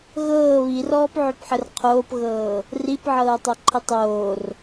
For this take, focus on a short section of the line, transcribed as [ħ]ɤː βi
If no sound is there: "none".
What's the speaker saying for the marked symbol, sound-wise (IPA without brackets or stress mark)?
ɣ